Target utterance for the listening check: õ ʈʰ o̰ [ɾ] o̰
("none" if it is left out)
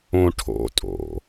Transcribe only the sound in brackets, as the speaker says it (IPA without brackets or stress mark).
tʼ